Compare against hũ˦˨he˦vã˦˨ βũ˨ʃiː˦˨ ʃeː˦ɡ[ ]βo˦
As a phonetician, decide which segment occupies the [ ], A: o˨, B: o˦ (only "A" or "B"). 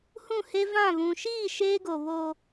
A